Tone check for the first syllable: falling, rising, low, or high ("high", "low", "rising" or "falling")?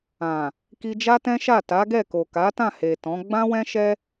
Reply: low